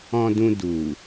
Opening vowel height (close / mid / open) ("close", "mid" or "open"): mid